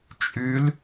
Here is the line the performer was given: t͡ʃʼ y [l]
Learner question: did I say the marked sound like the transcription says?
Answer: yes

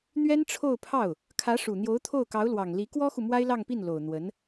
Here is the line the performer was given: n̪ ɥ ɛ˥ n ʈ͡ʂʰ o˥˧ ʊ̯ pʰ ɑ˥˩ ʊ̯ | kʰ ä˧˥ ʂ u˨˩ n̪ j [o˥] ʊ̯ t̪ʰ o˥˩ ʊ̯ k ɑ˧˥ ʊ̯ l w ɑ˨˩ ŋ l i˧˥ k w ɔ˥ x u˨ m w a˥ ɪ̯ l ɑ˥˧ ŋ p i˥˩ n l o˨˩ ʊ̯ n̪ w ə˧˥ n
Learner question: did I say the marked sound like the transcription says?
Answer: no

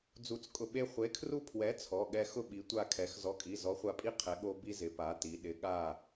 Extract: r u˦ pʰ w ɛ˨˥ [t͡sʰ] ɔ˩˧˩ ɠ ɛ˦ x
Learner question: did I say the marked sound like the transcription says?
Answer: yes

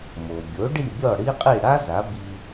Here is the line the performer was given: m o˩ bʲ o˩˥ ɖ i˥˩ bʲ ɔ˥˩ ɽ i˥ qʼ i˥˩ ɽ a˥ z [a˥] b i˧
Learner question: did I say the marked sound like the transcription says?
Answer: no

